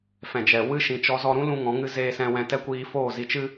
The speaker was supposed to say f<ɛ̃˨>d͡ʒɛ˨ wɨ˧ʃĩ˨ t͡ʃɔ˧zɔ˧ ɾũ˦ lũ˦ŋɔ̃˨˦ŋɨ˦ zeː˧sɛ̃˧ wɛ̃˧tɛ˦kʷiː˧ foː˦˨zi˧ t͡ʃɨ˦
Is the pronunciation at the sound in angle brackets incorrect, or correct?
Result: correct